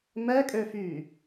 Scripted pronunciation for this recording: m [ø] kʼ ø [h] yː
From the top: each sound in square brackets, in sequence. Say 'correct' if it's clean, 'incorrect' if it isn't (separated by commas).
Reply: incorrect, incorrect